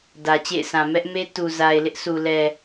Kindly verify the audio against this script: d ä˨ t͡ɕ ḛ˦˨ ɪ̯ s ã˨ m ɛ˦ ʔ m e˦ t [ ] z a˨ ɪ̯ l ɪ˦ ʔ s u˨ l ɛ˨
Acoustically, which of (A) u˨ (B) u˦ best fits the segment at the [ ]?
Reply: A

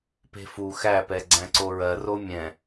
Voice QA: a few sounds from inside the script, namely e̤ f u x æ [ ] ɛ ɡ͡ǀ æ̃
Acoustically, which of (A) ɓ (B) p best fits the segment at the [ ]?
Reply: B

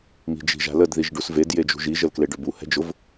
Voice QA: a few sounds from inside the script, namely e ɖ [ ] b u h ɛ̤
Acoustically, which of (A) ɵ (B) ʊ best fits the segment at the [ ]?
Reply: A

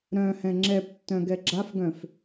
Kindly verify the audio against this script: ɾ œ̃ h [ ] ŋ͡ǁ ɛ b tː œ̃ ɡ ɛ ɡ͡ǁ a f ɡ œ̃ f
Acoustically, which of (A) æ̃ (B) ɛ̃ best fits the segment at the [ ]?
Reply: B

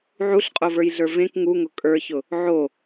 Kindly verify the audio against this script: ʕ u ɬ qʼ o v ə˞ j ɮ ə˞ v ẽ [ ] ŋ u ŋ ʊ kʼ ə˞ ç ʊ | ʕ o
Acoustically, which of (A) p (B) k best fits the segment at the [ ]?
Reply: B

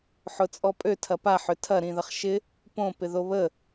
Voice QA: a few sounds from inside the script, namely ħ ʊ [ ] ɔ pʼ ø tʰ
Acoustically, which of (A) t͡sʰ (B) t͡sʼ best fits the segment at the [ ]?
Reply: B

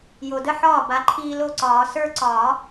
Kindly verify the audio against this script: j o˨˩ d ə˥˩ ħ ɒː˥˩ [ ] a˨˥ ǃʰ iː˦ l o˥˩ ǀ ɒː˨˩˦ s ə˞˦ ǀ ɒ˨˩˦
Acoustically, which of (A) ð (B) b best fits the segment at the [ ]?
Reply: B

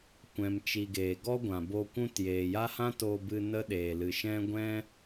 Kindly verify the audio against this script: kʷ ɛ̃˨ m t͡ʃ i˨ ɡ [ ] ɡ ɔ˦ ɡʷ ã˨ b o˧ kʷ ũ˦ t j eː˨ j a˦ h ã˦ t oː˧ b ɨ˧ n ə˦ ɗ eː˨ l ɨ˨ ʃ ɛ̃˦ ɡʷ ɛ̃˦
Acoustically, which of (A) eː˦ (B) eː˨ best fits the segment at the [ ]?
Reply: B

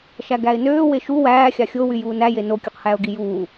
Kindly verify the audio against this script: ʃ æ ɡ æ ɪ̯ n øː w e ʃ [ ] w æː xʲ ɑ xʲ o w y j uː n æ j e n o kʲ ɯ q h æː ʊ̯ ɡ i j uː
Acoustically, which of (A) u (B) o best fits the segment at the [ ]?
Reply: A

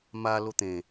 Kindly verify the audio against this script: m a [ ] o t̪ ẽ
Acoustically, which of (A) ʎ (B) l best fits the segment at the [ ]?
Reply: B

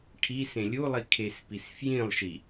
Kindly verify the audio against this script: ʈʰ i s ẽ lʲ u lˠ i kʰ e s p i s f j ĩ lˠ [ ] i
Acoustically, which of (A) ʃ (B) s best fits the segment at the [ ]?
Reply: A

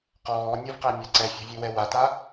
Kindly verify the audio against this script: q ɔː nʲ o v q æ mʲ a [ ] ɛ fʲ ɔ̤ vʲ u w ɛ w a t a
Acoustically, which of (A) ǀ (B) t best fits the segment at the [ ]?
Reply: A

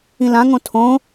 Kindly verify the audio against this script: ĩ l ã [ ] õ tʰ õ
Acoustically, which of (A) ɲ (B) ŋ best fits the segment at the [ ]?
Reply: B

